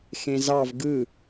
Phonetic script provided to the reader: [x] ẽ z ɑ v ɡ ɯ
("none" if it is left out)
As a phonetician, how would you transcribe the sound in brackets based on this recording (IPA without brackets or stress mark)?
x